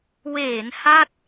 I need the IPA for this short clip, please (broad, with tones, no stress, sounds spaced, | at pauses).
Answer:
w eː˩˦ n h a˥˩ t̚